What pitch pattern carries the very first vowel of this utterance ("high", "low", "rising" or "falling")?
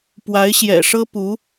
rising